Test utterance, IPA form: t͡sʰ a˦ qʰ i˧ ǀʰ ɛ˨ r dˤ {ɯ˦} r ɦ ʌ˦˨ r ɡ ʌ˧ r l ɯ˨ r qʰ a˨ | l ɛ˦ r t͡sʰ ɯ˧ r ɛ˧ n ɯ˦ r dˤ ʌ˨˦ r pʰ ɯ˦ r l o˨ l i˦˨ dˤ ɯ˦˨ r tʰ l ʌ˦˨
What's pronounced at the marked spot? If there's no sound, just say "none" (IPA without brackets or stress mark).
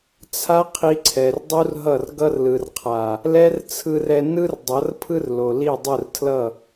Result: u˦